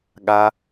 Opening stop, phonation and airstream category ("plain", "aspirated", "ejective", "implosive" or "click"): implosive